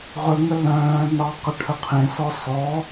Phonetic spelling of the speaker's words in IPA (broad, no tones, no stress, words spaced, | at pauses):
ʁɵŋə lœ̃ː nɑ qəʈʰəqʰẽsɔ sɔ